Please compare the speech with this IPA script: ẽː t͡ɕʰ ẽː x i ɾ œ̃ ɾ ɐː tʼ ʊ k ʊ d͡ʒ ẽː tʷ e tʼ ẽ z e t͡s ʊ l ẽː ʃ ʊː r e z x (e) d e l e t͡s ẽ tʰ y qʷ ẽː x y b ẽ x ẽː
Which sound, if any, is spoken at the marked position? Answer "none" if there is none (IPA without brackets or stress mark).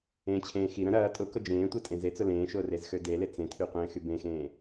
ø